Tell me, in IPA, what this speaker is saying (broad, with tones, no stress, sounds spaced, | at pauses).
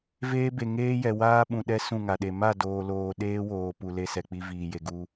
v eː˦ b e˨ ŋ eː˦ j ɛ˨ w aː˦ ɓ ũ˨ ɗ ɛ˦ s ũ˦˨ ŋ a˨ ɗ e˨ m a˦˨ d oː˨ l oː˨ ɗ eː˦ w oː˨ p u˨ l e˦ s ɛ˨ k͡p i˦ v iː˨ j e˨ ɡ u˦